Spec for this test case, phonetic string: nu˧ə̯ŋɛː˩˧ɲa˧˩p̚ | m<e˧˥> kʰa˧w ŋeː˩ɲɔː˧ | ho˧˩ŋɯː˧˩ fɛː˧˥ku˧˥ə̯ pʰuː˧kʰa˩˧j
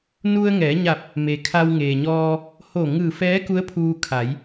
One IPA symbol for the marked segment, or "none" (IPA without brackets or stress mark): e˩